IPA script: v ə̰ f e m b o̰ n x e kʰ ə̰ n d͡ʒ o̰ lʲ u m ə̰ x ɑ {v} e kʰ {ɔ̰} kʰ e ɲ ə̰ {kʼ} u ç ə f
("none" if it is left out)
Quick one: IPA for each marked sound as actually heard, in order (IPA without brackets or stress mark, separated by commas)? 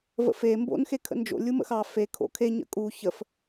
f, o̰, kʼ